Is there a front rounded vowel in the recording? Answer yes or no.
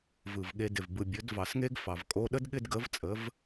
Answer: no